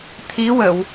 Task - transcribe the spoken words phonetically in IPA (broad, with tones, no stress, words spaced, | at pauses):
t̪ʰi˧˥wə˨˩˨w